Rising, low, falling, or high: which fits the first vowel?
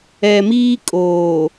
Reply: low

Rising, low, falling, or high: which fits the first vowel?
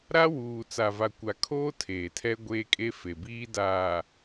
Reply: high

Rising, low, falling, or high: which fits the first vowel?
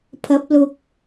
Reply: rising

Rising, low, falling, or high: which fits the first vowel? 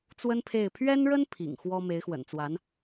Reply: high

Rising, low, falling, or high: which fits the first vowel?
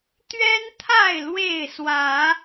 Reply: high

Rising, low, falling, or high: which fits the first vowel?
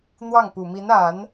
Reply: falling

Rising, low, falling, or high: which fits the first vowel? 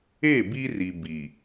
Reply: falling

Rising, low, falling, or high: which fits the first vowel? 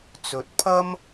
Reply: rising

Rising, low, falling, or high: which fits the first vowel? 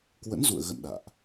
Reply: rising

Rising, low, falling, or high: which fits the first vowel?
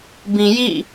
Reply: low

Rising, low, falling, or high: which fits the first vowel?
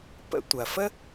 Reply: high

